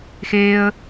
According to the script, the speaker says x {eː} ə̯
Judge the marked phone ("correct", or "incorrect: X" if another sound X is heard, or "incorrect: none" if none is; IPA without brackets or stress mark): correct